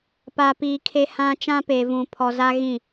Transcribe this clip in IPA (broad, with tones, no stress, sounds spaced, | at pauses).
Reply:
p a˨ p iː˨ kʰ e˦ h ã˦ t͡ʃ ã˦ p eː˨ v ũ˨ pʰ ɔ˨ z a˦ ɣ ĩ˦˨